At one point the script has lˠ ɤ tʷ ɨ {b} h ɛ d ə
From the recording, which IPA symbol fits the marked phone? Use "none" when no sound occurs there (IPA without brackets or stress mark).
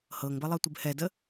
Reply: b